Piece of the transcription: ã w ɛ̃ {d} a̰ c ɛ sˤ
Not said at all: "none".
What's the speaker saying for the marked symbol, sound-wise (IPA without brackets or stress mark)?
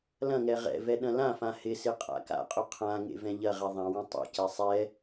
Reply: tˤ